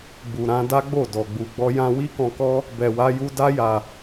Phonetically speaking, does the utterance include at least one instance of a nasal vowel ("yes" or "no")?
yes